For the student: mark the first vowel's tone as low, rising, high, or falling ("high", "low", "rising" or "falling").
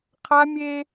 high